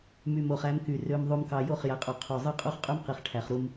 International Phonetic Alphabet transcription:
m y˨ m o˨ χ æ˦ m k y˨ r ø˨ m ðˤ u˨ m k ɑ˨ j o˦˨ χ j æ˨ qʼ o˨ qʰ o˨ zˤ ɯ˦ qʼ u˦ χ qʼ y˦ m q i˨ χ ʈʰ æ˨ χ ɾ u˦ m

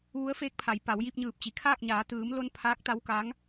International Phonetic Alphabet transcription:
ʋ u˧˥ ə̯ f eː˧˥ k̚ pʰ a˩˧ j p a˩˧ w j i˧ p̚ ɲ ɯː˧˩ p̚ t͡ɕ i˩ kʰ aː˥˨ k̚ ɲ aː˩˧ t̪ ɯː˩˧ m l o˧ n pʰ aː˧˥ k̚ t̪ a˧˥ w k aː˧˥ ŋ

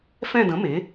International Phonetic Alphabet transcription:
f ɛ̃˦˨ d ə̃˩˥ m e˩˥

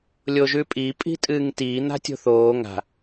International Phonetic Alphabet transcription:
lʲ o ʒ ʉ pʼ i pʼ i̤ tʼ ɨː ŋ t iː n̪ a̤ tʲ o̤ θ oː ŋ a̤

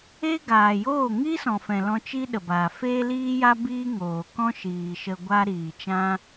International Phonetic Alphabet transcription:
e˦ ɡ aː˨ j oː˦˨ ŋ i˦ s ɔ̃˨ f ɛ̃˨ l ɔ̃˧ t͡ʃ i˦ ɗ ə˨ b aː˨ f eː˦ l iː˦ j a˦ b iː˦ ŋ oː˨ k ɔ̃˦ ʃ iː˨ ʃ ə˧ ɡʷ a˦ ɾ iː˨ t͡ʃ ã˦

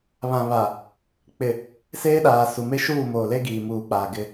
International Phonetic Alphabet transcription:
β ã˨ β a˨ | k͡p ɪ˨ | s eː˦ ɗ aː˨ s u˨ m e˦ ʃ uː˦˨ m oː˨ l e˦ ɡ iː˨ m uː˨ k͡p aː˨ ɡ ɪ˦

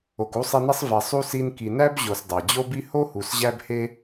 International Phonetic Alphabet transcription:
o˨ k u˥ sˤ i˦ n e˥ sˤ v e˨ sˤ u˥ s i˦ n k i˨ n æ˥ b ʑ o˨ s dˤ æ˩ d͡ʑ o˥ b i˥ h o˥ h u˨ s ʑ æ˦ b h e˦

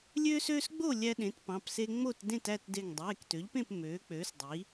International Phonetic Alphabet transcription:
lʲ øː˦ s øː˦ s ɡ͡b o˥˨ lʲ æ˦ ɗ ẽ˩˥ t p ɑ̃˩˧˩ p s e˦ ŋ͡m o˥˨ t d ẽ˥˨ t æ˥˨ t d e˧˩ ŋ dˤ eː˩˧˩ k t ø˩˥ ʎ p ẽ˥˨ p m øː˩˥ k͡p øː˩˥ s dˤ i˩˥

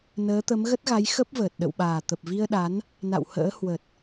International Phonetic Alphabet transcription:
n əː˨˦ t̪ ə˨˦ m ɣ ə˦˥ t̚ ɣ a˨˦ j x ə˦˥ p̚ v əː˨˩ t̚ ɗ ə̰˧˨ w ɓ aː˨˩ t̪ ə˨˩ p̚ v i˧ ə̯ ɗ a˨˦ n | n a̰˧˨ w h ə̰ː˧˥ h w ə˨˩ t̚

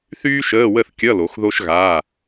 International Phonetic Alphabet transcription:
θ yː˥ ʃ əː˧˥˧ w ə˥˨ θ kʲ ʌ˧˥˧ l o˨˦ x ð o˥ ʃ ɣ aː˧˥˧

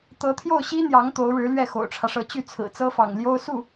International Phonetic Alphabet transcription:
t̪ ɤ˧˥ t̪ʰ j o˥˩ ʊ̯ ɕ i˥ n̪ j ɑ˧˥ ŋ t̪ o˧˥ ʊ̯ ɻ ɻ̩˧˥ l ɥ ɛ˥˩ x o̰˨˩ ʊ̯ ʈ͡ʂʰ ä˦ ʂ ɤ˧˥ t͡ɕ y˥˩ t͡sʰ ɹ̩˨˩ t͡s ɤ˥ f ɑ̰˨˩ ŋ l j o˥ ʊ̯ s u˥˩

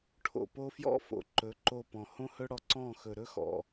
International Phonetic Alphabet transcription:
ʈʰ o̰˨ p o˦ f j ɔ̰˦˨ f o̰˨ ǃ ɵ˨˦ ǃ o˧ p ɔ̃˨ h õ˦ h ɵ˦ ɽ ɔ˧ ǀ ɔ̃˦˨ x ɵ˨ ɾ ɵ˦ x ɔ̰˨

